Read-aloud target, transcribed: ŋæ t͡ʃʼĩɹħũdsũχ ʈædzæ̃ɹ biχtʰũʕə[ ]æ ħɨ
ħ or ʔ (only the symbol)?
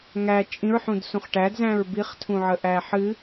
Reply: ʔ